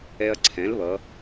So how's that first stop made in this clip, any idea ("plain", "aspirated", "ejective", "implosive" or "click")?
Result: click